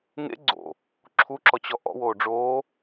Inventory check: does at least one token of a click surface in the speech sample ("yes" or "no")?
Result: yes